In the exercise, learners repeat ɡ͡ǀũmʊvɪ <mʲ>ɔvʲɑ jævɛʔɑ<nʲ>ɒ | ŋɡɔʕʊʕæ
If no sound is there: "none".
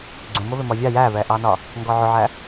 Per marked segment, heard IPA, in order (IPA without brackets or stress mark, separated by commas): m, n